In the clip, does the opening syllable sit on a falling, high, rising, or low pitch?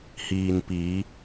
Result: low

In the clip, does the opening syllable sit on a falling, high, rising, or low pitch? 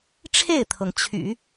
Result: falling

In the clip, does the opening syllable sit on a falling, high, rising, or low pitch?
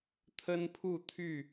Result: high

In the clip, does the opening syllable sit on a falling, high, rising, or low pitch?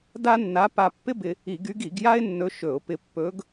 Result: high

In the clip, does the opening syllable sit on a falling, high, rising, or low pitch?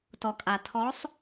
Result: low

